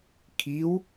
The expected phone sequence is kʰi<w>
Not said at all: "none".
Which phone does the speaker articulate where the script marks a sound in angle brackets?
w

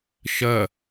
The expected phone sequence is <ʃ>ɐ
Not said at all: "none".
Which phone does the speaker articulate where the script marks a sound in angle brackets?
ʃ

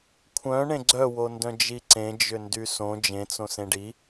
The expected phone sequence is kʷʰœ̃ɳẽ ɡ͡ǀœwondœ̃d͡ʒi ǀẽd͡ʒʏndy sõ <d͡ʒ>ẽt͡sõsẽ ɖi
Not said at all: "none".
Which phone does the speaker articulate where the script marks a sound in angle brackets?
d͡ʒ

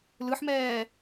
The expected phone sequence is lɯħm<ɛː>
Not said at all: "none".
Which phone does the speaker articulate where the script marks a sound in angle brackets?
ɛː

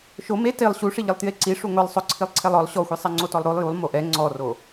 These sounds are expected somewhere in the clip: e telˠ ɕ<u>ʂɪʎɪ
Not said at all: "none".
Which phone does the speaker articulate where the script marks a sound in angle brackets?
u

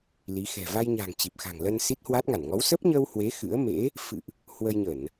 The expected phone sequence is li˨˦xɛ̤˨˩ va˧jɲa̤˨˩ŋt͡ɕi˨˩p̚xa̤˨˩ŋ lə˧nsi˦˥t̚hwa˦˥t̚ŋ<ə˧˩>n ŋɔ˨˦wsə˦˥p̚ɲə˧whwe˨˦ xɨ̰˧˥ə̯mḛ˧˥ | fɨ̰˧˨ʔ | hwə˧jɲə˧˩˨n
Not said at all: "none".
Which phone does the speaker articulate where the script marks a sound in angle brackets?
a˧˩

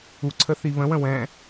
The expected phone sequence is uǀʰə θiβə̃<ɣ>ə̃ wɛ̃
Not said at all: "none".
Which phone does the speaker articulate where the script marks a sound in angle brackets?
w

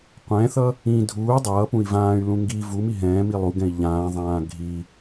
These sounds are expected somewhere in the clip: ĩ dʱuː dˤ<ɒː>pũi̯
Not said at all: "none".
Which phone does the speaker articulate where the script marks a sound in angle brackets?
ʌː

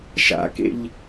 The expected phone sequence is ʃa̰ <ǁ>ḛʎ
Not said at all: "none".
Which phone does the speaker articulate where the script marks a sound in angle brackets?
k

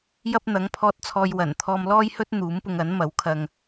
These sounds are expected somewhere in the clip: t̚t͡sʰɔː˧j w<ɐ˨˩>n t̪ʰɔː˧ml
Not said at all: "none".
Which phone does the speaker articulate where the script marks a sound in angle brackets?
ɐ˨˩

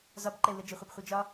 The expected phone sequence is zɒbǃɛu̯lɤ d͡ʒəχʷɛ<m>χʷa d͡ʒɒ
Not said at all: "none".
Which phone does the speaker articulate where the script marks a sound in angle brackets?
b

